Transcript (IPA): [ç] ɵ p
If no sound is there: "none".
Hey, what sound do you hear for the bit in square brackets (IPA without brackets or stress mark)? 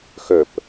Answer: x